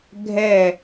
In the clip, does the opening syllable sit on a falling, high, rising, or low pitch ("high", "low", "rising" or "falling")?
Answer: falling